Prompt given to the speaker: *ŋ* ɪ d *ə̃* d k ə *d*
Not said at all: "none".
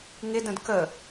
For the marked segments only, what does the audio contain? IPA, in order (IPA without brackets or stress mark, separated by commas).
ŋ, ə̃, none